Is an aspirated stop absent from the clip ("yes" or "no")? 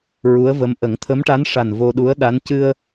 no